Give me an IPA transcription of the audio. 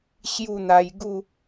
ɕ j u˥˧ n̪ a˧ j ɡ u˥˧

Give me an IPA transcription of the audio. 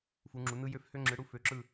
f u˨˦ ŋ͡ǁ u˨˦ n ɯ˥ j ø˥ f h ø˥ ŋ͡ǁ ɯ˨˦ ɽ u˥ f ø˨˦ ǁ ɯ˦˨

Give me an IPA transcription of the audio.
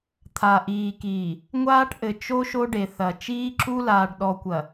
t̪ʰ a˨ ʔ iː˨ k iː˨ | ŋʷ aː˦ ʈ ʔ ɘ˨ t͡ʃ o˦ ʃ o˦ ɖ e˨ θ ɐ˨ t͡ʃ iː˦ ǁ u˦ l aː˨ ɖ ɗ ɔ˨ kʷ ɐ˨

